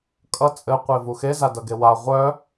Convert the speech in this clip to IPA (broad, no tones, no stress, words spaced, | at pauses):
kʼʌ t͡sʼɘ qʷevuxe zadʌɡewa ʁʷœ